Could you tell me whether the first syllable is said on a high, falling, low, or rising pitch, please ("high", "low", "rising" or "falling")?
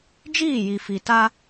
falling